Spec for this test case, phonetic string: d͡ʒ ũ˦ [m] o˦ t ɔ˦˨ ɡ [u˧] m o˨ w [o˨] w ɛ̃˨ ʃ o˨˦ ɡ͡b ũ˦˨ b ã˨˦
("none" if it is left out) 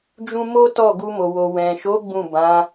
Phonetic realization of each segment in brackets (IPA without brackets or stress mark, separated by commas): m, u˧, o˨